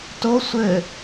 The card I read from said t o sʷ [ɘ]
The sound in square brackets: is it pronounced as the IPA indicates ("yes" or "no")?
yes